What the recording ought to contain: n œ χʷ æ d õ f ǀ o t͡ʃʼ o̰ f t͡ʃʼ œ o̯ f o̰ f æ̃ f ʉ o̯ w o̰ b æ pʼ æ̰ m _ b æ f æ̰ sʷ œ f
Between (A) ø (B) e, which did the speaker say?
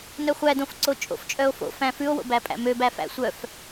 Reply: A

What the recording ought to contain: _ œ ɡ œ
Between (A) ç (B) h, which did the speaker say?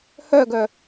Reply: B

